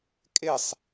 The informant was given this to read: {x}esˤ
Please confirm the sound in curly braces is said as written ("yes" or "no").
no